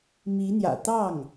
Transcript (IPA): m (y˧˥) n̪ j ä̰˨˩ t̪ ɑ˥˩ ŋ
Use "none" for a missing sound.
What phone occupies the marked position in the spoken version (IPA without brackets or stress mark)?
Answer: i˧˥